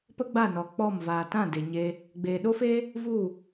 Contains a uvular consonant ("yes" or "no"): no